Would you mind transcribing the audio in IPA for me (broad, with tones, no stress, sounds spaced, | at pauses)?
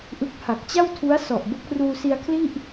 ʔ ɯ˦˥ k̚ h a˨˩ k̚ t͡ɕ a˥˩ w tʰ u˦˥ a̯ s ɔ˨˩ ʔ b o˦˥ k̚ r uː˧ s i˧ a̯ kʰ l i˥˩ ʔ